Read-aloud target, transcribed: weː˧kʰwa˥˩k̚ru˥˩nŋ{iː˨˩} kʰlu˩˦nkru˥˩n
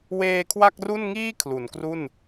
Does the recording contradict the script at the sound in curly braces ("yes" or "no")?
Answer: yes